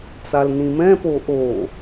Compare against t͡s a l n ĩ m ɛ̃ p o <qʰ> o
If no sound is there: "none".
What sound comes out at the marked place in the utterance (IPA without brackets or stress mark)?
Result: ʔ